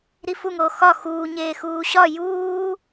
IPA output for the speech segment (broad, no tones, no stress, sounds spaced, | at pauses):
ɾ i f u ŋ oː x ɒ x uː ɲ eː x uː ɕ ɒ j uː